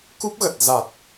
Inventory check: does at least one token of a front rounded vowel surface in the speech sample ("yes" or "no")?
no